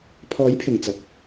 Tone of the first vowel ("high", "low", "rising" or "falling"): rising